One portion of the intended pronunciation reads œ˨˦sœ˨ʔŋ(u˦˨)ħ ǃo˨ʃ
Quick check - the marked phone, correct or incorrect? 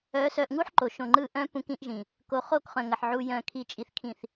incorrect